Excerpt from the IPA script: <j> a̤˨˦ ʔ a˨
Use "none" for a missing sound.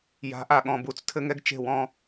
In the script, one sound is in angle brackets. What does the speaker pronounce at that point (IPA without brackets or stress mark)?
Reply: j